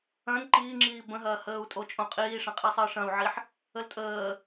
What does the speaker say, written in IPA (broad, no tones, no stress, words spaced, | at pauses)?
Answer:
ɐ̃n ǃiːŋ͡ǁiː bə̃ɦɐː həːu̯tʼot͡ʃʼõ qʼiːʂɐ̃qʼi sˤəːʂɐ̃u̯ʕiħ | əltʼəː